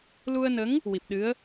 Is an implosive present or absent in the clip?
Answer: present